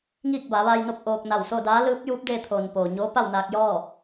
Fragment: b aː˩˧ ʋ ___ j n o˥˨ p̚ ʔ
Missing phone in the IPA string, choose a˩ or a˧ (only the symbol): a˧